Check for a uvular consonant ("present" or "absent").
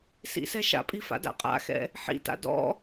present